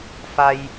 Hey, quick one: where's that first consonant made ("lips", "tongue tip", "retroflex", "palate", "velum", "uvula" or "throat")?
lips